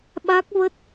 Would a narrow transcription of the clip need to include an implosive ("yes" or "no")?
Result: yes